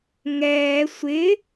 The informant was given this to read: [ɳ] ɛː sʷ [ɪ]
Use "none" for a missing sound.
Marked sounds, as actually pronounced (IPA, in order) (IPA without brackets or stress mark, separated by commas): ŋ, ɪ